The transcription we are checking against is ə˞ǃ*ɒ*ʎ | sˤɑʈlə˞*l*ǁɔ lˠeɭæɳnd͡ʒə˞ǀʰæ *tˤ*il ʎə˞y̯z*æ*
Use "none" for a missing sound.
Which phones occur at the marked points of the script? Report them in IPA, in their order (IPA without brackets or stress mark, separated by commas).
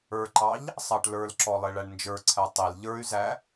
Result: ɑ, l, tˤ, æ